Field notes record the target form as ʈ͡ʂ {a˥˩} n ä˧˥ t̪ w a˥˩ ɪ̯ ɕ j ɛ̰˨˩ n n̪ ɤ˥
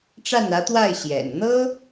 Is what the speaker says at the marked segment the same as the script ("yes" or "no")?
yes